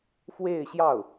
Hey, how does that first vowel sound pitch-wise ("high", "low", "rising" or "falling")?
falling